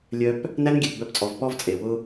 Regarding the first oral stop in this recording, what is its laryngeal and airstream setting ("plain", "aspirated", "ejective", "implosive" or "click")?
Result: plain